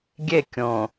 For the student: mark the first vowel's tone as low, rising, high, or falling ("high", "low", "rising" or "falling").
falling